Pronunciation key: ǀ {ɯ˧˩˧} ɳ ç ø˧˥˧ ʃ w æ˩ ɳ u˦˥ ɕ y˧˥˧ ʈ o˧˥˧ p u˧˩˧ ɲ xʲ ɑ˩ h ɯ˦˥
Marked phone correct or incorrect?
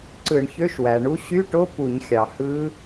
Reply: correct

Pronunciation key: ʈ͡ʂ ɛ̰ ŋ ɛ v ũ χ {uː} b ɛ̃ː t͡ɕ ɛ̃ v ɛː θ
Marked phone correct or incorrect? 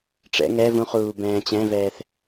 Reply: correct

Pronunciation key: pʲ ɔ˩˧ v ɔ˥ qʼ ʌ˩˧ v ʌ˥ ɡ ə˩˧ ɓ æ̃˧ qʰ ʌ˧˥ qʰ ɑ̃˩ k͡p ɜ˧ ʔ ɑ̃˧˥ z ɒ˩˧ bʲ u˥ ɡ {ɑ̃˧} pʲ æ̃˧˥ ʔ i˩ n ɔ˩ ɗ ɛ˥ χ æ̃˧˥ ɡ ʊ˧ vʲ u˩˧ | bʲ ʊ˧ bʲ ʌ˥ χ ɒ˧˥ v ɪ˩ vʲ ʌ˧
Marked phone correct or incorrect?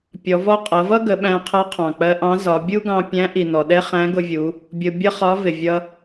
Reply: correct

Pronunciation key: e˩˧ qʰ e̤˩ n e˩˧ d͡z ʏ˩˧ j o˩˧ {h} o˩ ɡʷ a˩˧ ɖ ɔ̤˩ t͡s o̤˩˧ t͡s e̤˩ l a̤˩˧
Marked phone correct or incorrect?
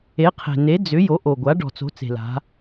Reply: incorrect: ʔ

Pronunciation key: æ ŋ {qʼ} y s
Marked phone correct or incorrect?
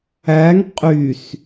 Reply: correct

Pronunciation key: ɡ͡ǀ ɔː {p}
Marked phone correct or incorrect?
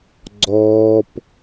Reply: correct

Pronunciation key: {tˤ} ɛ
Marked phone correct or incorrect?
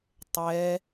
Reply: correct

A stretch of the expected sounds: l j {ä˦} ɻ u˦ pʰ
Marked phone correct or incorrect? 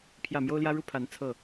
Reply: correct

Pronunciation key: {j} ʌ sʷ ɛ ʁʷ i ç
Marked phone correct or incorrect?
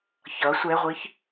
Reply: incorrect: ç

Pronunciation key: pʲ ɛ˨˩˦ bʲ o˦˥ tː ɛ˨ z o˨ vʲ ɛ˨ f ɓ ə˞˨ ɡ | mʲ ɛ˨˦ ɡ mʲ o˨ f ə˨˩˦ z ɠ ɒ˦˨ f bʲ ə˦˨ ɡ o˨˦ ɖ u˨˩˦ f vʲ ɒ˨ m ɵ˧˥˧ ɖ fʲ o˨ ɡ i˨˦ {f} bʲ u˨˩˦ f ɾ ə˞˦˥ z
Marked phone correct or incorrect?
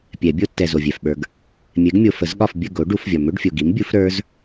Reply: incorrect: m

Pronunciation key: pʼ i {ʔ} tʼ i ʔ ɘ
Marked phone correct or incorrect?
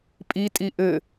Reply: incorrect: none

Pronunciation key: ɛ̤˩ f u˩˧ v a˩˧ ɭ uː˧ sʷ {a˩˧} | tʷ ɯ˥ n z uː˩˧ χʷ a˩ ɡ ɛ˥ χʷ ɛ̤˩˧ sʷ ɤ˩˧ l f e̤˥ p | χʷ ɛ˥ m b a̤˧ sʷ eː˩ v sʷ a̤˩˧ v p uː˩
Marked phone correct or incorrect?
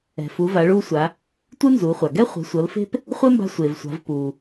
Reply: correct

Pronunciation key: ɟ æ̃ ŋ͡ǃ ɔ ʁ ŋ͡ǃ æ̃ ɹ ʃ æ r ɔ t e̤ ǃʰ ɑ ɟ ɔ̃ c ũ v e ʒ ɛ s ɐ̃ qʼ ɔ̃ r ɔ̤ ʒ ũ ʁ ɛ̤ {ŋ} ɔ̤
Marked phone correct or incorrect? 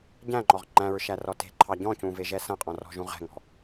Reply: correct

